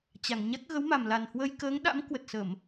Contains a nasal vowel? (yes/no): no